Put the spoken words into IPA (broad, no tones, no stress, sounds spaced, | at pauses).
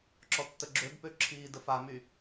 ǁ ɔ tː ə ɡ͡ǁ ø b p ø ǁʰ iː d ə f a m y